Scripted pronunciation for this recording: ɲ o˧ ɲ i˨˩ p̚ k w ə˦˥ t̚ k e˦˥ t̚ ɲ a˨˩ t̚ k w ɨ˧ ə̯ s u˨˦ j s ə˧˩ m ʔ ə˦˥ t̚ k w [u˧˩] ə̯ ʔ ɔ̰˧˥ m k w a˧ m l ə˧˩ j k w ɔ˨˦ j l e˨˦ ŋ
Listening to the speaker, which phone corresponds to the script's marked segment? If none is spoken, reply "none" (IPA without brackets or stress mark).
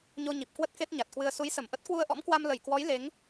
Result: u˧